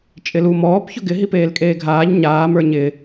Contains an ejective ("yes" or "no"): yes